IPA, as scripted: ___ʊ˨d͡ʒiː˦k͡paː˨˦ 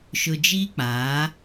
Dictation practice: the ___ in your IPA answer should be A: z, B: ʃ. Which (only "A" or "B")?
B